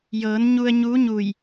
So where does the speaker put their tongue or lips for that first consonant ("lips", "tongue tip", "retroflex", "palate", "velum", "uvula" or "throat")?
palate